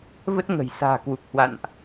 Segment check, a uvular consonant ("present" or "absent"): absent